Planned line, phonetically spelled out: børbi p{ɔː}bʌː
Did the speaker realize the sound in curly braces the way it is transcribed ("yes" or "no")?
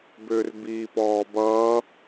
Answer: yes